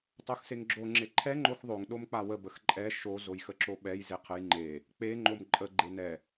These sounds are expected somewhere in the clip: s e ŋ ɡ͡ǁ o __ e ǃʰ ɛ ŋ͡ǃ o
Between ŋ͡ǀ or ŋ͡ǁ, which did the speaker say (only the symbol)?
ŋ͡ǁ